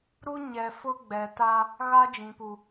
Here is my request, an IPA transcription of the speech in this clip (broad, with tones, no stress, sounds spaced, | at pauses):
ɾ u˦ ɲ ɛ˨ f ʊ˦ ɡ͡b ɛ˨ t a˦ | ɣ a˦ d͡ʒ ĩ˨ p u˨